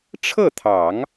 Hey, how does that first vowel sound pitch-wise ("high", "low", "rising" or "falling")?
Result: falling